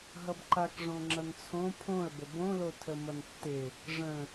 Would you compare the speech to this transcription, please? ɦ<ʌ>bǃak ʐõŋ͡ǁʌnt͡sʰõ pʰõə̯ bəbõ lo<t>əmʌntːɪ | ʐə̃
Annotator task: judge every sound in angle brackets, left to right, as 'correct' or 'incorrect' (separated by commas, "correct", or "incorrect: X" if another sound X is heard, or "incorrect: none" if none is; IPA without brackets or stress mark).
correct, incorrect: tʰ